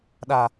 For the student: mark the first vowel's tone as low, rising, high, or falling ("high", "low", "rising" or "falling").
low